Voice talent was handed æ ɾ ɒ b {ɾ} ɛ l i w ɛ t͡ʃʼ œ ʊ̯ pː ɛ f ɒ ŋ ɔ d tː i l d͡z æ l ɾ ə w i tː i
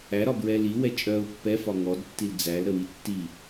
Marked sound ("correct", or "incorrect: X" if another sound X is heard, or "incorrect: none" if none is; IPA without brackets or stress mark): incorrect: ɹ